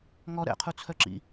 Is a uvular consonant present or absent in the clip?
present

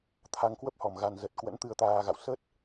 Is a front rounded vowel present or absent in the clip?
absent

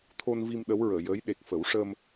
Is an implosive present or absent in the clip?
present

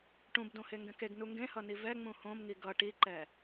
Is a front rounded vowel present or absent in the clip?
absent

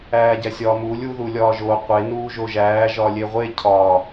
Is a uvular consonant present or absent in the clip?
present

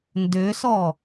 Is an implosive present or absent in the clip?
absent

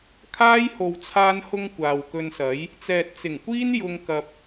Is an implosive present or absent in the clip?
absent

